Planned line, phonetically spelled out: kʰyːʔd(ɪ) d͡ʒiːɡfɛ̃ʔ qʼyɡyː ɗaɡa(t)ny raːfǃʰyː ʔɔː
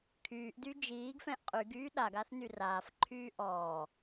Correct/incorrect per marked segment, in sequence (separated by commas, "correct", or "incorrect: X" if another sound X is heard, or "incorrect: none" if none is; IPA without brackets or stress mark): incorrect: y, incorrect: θ